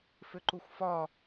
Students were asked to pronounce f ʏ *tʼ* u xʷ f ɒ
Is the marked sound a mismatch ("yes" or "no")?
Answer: yes